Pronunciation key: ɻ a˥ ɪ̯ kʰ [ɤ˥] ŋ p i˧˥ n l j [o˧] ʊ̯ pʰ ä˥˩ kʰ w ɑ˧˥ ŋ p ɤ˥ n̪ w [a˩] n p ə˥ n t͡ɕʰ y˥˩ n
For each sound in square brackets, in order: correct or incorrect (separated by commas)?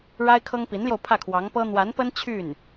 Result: correct, correct, incorrect